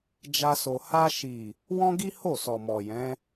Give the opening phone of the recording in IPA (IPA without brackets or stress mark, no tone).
d͡ʒ